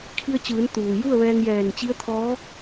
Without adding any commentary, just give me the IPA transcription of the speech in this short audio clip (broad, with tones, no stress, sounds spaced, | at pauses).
kʰ i˧ ə̯ t͡ɕ ɯː˩˧ n t̪ uː˩ j u˥˨ ə̯ ʋ ɛː˧ ŋ j ɛː˧˩ n t͡ɕ i˧˥ ə̯ t̪ʰ ɔː˧˥